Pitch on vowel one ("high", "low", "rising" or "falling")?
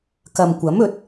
low